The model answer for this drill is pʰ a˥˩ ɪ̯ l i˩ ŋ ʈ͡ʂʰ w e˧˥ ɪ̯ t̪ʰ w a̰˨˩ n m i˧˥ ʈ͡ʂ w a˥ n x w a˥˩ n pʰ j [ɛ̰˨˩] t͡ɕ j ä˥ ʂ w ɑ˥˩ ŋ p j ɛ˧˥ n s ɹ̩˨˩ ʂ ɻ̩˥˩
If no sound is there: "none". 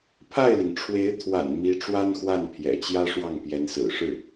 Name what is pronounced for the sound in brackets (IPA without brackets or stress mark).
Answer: ɛ̰˨˩